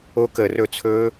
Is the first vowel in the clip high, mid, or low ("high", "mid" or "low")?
mid